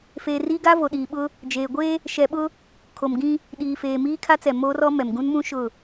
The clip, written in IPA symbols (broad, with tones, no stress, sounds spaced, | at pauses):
f eː˨ r iː˦ ɡ a˦ v o˨ ɗ iː˨ ɓ ʊ˦ | d͡ʒ eː˨ ɡʷ eː˦ | ʃ ɛ˨ ɓ ʊ˦ | kʰ o˨ m ɡ ĩ˦ | ɗ iː˨ f eː˨ m iː˦ kʰ a˦ t͡s ɛ˨ m oː˦ r ɔ˦ m ɛ˨ m ɡ ũ˦ n m ũ˦ ʃ ʊ˦˨